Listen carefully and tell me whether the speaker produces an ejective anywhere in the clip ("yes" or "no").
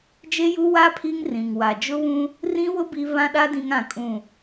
yes